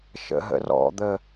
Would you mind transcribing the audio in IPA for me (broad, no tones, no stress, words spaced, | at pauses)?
ʃə̰ɦə̰rɔ̰d̪ə